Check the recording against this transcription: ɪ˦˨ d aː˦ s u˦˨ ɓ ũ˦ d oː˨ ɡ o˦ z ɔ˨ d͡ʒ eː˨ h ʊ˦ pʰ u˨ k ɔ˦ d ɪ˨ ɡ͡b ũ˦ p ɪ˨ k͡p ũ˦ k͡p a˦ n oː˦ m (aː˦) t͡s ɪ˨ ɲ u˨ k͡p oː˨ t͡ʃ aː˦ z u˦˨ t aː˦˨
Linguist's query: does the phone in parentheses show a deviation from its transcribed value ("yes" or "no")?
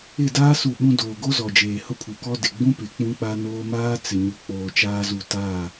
no